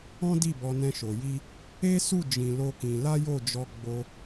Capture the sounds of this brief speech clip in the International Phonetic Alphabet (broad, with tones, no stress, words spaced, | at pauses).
ɔ̃˦di˦˨bɔ˧ nɛ̃˧ʃo˨ji˧ | e˦su˦˨ d͡ʒĩ˧lo˦kĩ˧ la˦jo˦˨d͡ʒɔ˧ ɡ͡bo˧